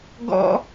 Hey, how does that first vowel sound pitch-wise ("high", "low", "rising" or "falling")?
high